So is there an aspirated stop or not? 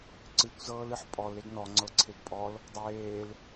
yes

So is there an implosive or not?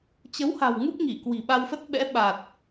yes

